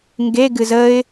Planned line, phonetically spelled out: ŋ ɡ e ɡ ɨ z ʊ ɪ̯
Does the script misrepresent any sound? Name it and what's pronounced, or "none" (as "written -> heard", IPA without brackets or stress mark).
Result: ʊ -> ə